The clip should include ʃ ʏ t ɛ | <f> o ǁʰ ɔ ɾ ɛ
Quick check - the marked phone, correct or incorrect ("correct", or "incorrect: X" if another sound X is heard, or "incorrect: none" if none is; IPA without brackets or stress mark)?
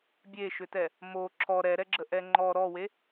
incorrect: m